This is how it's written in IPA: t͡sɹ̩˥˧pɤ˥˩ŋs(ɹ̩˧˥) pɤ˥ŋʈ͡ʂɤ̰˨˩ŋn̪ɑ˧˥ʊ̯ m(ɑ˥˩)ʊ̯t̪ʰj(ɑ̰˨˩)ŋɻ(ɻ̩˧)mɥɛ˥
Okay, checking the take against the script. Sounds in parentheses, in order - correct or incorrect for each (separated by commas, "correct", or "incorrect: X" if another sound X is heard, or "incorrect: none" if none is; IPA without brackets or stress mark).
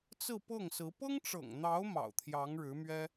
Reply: correct, incorrect: ɑ̰˨˩, incorrect: ɑ˧˥, incorrect: ɻ̩˧˥